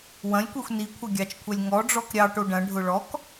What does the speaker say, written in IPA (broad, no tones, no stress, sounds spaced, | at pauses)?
w ɐ̃ lʲ kʷ e xʷ n i kʷʰ ɐ ɡʲ ɑ t͡ʃ kʷʰ ɛ lʲ ŋ ɔ ɖ͡ʐ ɔ k ɾʲ ɑ ʈ o ɖ ɐ̃ ɖʱ ʊ ɭ ɔ k